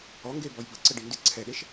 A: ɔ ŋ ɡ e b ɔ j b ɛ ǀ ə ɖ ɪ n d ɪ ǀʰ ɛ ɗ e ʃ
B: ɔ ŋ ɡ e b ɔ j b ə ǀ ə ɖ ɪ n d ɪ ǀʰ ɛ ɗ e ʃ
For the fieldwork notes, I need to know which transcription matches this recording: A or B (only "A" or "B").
B